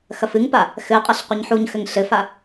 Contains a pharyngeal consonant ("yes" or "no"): yes